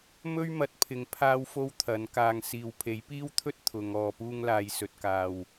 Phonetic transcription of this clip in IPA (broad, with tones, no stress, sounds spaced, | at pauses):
m ɵ˥ ɥ m ɐ˨˥ t̚ pʰ ɪ˨˧ ŋ pʰ aː˥ w f o˥ w t̪ʰ ɐ˨˥ n k aː˧ ŋ s iː˨ w pʰ e˨˥ j p iː˥ w t̪ʰ ɵ˥ t̚ t̪ʰ ʊ˨˧ ŋ ɔː˨ p uː˧ ŋ l aː˨ j s ɵ˨ t̚ k aː˨ w